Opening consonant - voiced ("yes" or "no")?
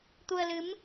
no